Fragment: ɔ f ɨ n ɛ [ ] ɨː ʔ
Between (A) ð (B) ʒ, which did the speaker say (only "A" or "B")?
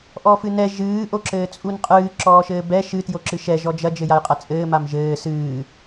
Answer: B